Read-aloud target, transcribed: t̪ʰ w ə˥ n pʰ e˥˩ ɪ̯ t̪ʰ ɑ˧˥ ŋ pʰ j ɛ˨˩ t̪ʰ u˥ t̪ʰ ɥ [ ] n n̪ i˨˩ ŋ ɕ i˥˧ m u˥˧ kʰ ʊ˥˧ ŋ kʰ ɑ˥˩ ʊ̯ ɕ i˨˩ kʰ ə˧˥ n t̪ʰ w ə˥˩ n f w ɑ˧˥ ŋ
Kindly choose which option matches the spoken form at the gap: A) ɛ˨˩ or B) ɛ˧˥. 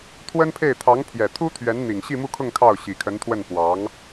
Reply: B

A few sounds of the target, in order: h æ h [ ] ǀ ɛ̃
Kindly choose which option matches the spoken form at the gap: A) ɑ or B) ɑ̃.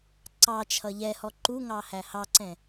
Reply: A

